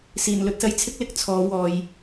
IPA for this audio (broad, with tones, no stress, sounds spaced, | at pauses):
s iː˨˩ n l ɵ˧ t̚ s ɐ˥ j t͡sʰ ɪ˥ k̚ l ɪ˨˥ k̚ t͡sʰ ɔː˨˥ w ɔː˨˧ j